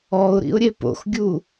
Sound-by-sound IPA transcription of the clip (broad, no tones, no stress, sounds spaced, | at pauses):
ɔ ʊ̯ ɾ ḭ ʊ̯ ɾʲ e p o̰ x ɡʲ u